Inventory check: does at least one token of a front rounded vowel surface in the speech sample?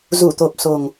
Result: no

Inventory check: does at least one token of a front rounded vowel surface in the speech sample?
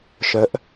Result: yes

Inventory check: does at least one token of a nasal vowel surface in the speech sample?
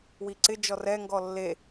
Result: no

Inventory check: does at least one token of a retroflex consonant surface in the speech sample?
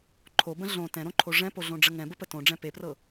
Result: yes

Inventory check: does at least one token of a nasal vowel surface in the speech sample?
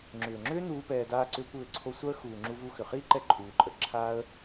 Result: no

